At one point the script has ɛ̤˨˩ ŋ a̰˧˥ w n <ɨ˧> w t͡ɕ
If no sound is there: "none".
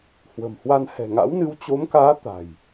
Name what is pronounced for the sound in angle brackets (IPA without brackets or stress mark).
ɨ˧